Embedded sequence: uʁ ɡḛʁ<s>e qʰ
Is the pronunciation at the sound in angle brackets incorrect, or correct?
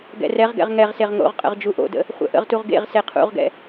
correct